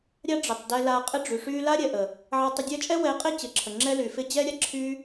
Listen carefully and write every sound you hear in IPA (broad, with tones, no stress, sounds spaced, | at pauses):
ɾʲ a˦ ɖ͡ʐ ɪ˨ tˤ d ɛ˧ l a˧ qʼ ɪ˦ ɖ͡ʐ y˨ ʂ y˦ l a˦ ɾʲ ɛ˨ ʔ ə˨ | ʕ a˧ tˤ ə˧ dʲ ɛ˦ t͡ʃʼ ɛ˦ w ɛ˨˦ qʼ ɪ˦˨ t͡ɕ ɪ˨˦ ǁʰ ə˨ ŋ͡ǁ ɛ˦ l y˨ f ɪ˧ d͡ʑ ɛ˦ ɾʲ a˦ ǁʰ y˦